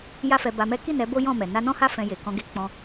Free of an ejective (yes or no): yes